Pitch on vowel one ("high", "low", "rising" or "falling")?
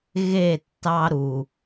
falling